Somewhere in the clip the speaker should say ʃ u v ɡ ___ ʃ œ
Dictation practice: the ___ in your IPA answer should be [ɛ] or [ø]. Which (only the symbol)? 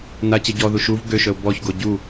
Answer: ø